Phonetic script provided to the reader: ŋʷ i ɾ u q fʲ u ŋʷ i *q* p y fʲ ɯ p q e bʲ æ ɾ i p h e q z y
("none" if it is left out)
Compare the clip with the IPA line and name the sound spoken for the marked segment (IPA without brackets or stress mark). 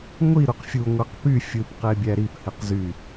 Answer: q